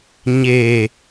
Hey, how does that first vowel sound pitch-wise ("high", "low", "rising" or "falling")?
low